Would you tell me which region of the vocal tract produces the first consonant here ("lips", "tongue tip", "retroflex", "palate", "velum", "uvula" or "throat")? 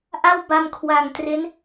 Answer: throat